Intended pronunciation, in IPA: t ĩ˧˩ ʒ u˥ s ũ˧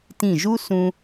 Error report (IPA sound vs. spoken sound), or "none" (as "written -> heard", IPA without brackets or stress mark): none